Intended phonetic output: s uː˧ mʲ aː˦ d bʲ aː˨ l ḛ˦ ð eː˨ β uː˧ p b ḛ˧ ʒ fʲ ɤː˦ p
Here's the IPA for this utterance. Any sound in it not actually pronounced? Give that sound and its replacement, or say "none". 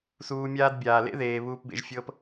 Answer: none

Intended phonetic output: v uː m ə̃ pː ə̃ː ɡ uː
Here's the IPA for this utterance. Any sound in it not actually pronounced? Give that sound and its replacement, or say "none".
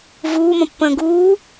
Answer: none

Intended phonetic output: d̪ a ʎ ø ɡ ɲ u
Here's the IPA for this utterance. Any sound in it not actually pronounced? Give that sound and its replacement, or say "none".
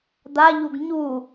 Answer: ø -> u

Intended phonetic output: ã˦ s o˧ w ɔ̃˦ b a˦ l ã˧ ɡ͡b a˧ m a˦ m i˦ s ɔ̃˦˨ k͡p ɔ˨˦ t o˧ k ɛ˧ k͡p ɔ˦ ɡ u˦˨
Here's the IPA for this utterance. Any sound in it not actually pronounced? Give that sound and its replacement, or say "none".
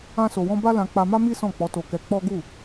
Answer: ɡ͡b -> k͡p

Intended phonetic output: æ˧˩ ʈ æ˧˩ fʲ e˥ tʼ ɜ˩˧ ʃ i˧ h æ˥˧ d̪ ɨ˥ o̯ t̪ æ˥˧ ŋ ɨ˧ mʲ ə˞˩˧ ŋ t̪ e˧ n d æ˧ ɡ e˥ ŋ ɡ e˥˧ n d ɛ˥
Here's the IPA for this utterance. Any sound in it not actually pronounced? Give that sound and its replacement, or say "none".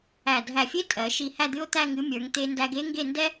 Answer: ʈ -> dʱ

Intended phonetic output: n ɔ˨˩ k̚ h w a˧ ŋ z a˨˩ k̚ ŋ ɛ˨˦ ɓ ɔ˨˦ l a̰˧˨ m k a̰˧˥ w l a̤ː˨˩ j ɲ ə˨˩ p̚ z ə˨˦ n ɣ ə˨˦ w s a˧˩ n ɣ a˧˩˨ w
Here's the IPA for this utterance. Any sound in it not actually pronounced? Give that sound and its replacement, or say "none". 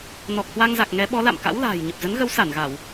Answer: none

